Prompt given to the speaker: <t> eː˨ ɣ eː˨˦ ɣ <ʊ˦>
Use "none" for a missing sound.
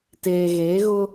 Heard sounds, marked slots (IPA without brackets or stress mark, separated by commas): t, ʊ˦